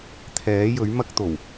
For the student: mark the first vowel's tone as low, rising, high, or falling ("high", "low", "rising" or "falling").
rising